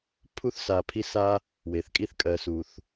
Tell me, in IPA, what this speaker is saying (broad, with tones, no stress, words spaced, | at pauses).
pʰu˥θsa˨pʰi˦sa˦ | we˩θkʼi˦θkʼɜ˨su˩θ